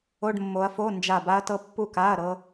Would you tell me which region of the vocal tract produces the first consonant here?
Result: retroflex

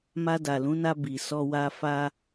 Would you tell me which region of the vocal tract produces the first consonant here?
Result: lips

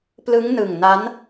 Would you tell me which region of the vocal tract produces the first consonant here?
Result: lips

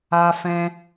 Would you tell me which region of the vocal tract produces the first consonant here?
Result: lips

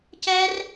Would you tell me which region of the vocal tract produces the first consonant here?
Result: palate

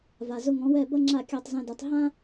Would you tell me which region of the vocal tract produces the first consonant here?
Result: lips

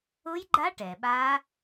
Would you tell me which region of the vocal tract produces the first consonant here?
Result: palate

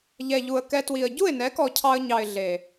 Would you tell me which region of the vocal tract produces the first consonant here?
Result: palate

